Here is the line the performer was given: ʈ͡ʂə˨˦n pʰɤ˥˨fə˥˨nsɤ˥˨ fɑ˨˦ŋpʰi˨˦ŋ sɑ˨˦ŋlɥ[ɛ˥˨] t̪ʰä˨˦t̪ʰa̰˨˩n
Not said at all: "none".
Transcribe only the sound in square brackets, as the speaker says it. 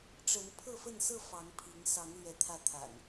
ɛ˨˦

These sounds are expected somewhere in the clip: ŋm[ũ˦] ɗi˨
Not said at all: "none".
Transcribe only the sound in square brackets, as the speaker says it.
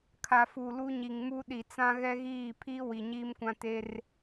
u˦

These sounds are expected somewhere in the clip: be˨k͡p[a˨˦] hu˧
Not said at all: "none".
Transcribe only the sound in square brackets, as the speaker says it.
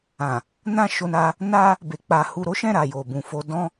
a˨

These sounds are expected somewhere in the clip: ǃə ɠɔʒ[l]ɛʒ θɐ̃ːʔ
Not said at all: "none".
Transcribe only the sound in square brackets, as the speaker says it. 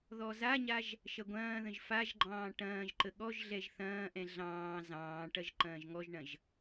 ɮ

